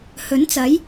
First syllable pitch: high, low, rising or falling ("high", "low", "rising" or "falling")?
rising